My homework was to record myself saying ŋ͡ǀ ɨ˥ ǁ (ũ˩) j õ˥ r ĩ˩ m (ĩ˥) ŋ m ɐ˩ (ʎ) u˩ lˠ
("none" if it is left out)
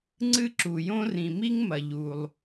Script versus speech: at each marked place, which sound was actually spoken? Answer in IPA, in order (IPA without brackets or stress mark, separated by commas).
u˩, i˥, ʎ